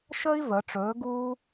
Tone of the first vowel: high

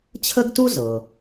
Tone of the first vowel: high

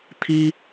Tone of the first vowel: high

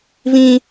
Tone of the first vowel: high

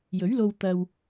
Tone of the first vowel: rising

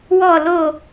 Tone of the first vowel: falling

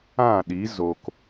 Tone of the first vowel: falling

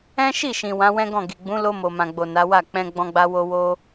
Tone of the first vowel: high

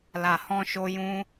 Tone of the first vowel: low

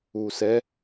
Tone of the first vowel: low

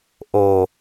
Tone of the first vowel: low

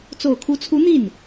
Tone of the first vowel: low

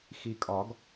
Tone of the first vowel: low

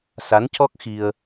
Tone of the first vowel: rising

